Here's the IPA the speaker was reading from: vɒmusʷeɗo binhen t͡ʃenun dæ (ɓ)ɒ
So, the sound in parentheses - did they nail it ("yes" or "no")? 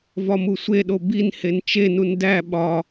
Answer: yes